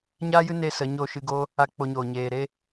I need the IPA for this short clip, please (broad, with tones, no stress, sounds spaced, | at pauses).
ɲ aː˦ j ɨ˦ n e˦ s ə˨˦ ɲ o˦˨ ʃ ɨ˧ ɡ oː˦ | a˦ k͡p o˧ ɲ oː˨ ɲ eː˨ ɾ e˦